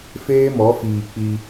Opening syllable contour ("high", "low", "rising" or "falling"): high